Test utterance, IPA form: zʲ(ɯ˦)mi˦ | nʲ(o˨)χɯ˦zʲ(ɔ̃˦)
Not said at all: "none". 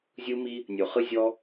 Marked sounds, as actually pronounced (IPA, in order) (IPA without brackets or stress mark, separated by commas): ɯ˦, o˨, ɔ˦